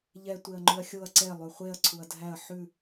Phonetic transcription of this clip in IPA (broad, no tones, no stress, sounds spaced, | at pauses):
ʎ ɛ tʷ e ɐ̯ ŋ͡ǃ ʉ ɐ̯ xʲ o ɐ̯ ǀ ɛ lˠ ʉ χʷ e ɐ̯ ǀʰ u ɐ̯ dʱ æ ɐ̯ ħ ʉ